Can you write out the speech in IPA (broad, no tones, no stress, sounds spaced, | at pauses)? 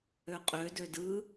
ø qʼ ø d ø d ɯ